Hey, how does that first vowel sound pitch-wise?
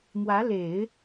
rising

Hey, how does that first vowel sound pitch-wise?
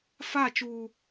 falling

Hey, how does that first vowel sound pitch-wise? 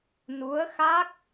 rising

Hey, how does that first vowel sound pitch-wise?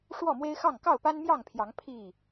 falling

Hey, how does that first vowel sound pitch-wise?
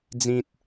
high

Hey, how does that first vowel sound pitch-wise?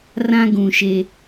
high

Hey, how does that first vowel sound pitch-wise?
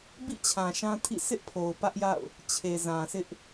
falling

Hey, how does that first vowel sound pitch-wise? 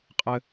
high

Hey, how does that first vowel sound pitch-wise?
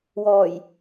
low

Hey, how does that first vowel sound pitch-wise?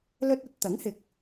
high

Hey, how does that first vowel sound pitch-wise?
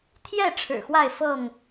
falling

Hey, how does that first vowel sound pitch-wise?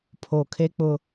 low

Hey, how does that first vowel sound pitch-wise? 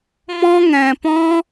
high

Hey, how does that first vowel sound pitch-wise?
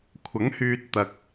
rising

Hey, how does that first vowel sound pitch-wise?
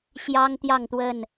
high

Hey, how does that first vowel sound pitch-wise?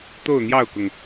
falling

